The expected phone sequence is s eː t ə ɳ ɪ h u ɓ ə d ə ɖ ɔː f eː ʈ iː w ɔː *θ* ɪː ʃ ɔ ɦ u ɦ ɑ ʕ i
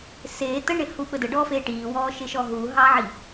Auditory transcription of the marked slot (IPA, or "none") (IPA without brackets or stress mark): ʃ